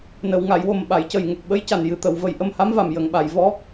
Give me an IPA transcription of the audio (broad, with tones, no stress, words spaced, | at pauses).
nə˨˩˨wŋa˨˩˨jwo˨˩m ɓa˨˩˨jcə˨˩jŋə˨˩k̚ ɓə˧˥jca˨˩n jɨ˨˩t̪ə˨˩˨w və˨˩jʔə˧mha˧˥mva˨˩m jə˨˩˨ŋɓa˨˩˨jvɔ˧˥